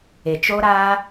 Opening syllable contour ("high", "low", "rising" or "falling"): low